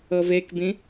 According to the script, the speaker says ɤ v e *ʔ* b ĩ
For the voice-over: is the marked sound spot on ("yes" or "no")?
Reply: no